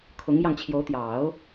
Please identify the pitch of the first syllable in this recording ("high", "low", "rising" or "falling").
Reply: rising